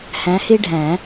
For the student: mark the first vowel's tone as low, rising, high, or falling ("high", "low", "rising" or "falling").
rising